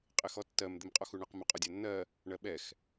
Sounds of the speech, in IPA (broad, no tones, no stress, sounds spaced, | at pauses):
qʼ ɪ x ɔ tː ɜ m d̪ ɪ m qʼ ɔ x u ɳ ə q m ʊ qʼ ɔ dʲ æ nː ɜ | ɳ ɜ ɓ ɛ x